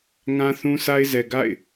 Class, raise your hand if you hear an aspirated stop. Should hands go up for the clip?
no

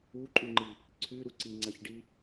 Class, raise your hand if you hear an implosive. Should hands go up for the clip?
no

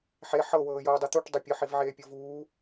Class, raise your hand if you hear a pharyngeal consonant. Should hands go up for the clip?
yes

